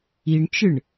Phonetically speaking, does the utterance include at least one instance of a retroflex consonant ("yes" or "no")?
yes